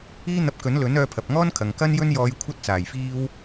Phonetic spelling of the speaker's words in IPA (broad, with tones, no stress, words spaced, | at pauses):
iː˥n̪ɐ˧p̚ kɵ˨˥nlɵ˨˥n œː˧pʰɐ˨p̚ŋɔː˥nkʰɐ˨ŋ kɐ˥njɵ˥njɔː˧j kʷʰɐ˥t̚t͡saː˨˩jfiː˥w